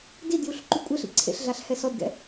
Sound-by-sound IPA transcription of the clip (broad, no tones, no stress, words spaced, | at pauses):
didjuɬ ǃykʷʼɛɬḭ ǀʰḛɬɮaɬ hɛsɔdɡɛ̰